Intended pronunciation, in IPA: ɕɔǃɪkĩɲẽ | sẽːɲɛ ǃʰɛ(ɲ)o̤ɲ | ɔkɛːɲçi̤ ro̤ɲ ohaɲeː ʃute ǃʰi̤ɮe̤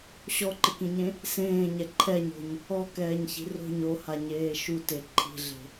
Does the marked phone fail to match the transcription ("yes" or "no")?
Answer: no